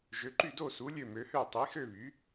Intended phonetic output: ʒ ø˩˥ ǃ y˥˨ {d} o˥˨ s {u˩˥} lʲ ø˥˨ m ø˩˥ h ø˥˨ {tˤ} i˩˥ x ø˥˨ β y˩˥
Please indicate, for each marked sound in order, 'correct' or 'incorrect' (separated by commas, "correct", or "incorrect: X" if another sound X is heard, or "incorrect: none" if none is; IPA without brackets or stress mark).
correct, correct, correct